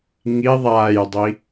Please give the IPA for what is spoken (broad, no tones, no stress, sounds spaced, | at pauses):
ŋ i ðˤ a j dˤ i